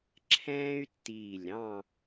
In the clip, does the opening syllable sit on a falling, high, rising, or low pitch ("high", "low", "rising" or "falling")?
high